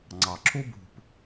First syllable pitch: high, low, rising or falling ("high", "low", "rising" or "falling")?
low